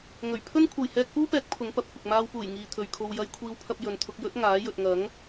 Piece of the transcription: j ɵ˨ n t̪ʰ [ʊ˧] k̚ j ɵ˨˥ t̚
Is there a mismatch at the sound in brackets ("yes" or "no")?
no